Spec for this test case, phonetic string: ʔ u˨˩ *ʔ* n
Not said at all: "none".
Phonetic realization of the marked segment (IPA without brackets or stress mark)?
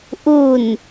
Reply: none